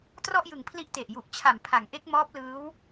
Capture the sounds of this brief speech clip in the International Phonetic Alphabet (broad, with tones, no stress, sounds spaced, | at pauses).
t r ɔ˥˩ ʔ j ɯ˨˩ ŋ pʰ l i˦˥ ʔ t e˨˩ ʔ j u˨˩ ʔ t͡ɕʰ a˨˩ m pʰ a˩˦ ŋ ʔ e˦˥ k̚ m ɔː˦˥ p̚ l ɯː˦˥ w